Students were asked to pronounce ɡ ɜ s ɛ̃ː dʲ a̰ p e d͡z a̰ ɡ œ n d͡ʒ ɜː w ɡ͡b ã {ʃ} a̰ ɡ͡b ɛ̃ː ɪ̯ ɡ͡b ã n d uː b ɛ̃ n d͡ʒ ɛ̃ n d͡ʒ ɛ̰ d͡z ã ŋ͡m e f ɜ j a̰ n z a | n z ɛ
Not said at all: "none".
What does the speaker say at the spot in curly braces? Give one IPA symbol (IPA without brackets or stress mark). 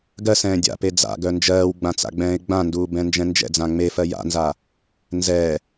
t͡s